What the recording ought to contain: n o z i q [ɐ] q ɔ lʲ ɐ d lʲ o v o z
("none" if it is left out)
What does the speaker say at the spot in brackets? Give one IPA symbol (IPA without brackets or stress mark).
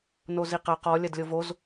ɐ